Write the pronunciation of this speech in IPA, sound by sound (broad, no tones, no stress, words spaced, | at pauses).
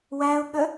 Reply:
wæʊ̯ɠə